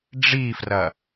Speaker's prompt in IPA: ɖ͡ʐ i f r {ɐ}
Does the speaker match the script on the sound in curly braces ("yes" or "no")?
yes